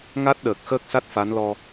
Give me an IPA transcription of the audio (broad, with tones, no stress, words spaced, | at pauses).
ŋa˦˥t̚ɗəː˨˩k̚ xəː˦˥k̚sa˦˥t̚ fa˧˥nlɔ˧